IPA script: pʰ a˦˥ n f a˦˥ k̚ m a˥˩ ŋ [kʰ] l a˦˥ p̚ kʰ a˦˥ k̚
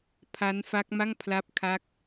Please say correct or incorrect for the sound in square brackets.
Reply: incorrect